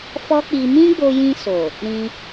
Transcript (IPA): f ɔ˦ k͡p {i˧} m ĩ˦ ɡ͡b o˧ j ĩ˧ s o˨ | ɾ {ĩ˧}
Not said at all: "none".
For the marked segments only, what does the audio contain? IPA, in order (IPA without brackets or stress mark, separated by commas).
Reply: i˧, ĩ˧